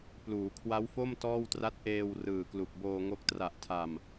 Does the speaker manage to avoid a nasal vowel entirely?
yes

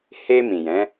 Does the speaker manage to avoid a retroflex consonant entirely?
yes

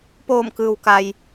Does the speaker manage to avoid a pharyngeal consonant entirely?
yes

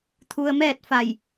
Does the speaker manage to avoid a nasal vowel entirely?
yes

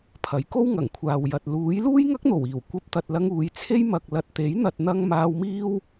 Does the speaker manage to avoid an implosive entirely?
yes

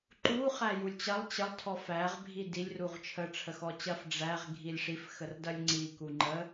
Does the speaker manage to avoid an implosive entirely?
yes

